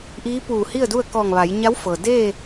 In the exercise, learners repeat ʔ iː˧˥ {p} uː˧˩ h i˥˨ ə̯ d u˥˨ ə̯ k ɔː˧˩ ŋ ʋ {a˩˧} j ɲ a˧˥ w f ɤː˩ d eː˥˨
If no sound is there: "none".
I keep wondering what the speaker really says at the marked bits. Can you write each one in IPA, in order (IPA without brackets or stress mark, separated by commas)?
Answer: p, a˩˧